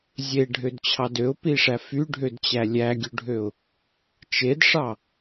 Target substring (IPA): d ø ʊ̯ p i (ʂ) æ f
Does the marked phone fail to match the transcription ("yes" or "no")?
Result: no